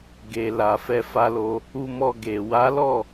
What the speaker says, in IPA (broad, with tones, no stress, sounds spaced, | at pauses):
ɡ e˨ l a˨ f ɛ˧ f a˦ l o˦ | u˧ m ɔ˧ ɡ e˨ w a˨˦ l ɔ˦˨